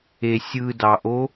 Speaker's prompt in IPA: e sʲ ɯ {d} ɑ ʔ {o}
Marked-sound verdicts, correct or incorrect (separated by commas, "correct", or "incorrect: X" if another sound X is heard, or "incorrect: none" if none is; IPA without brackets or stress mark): correct, correct